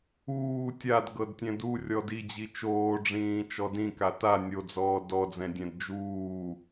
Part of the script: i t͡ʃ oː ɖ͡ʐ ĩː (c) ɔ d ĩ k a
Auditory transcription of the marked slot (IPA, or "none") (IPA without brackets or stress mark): t͡ʃ